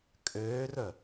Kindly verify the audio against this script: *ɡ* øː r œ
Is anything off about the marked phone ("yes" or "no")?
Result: yes